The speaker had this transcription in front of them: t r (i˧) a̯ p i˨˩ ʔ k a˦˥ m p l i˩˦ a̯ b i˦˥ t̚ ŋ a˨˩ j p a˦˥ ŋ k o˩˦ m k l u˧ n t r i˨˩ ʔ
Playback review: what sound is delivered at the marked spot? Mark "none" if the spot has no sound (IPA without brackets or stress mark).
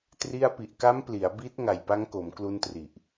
i˧